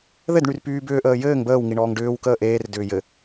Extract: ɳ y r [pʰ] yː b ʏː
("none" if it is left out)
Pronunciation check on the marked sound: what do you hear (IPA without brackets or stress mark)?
p